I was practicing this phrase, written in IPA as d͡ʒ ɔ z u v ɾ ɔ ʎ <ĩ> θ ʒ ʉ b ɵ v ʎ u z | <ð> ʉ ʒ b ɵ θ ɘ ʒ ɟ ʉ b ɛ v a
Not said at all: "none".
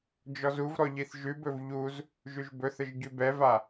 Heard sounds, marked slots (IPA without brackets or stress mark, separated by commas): i, ʒ